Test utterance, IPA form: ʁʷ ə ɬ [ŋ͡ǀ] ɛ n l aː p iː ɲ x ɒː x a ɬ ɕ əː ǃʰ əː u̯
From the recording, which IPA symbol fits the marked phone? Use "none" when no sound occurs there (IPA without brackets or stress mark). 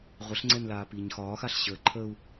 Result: ŋ͡ǀ